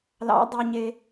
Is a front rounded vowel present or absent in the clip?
present